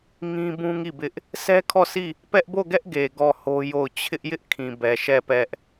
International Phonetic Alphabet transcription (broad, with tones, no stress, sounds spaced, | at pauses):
ŋ ĩ˦ b ũ˦ ŋ i˦˨ b ɪ˦ ʔ | sʰ ɛ˦ kʰ ɔ˦˨ sʰ i˦˨ | p ɛ˦ ʔ b o˦˨ ɡ ɛ˦ ʔ ɡ e˨ ɡ ɔ˦˨ h o˦ j o˦˨ ʊ̯ t͡ɕʰ ɪ˦ ʔ j ɪ˦ ʔ kʰ ĩ˨ b ɛ˨ ʃ ɛ˦˨ p ɛ˦ ʔ